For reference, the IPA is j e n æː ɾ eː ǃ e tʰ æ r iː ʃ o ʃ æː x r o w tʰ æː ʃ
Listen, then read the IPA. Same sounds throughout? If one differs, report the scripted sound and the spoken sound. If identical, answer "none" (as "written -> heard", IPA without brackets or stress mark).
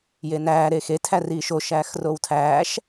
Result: ǃ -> x